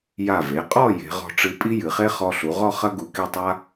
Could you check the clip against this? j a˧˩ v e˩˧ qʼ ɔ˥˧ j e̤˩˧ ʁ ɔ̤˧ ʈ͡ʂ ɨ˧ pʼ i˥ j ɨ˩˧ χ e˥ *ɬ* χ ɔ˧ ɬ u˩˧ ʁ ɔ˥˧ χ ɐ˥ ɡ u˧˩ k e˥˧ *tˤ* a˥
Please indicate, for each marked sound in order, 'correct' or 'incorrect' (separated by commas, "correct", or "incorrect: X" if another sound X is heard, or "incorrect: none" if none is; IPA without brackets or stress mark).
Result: incorrect: none, correct